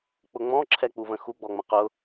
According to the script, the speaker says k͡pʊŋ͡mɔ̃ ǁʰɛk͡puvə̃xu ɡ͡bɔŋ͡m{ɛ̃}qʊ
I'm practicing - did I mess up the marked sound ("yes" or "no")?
yes